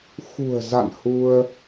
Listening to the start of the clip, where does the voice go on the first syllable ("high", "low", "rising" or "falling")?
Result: low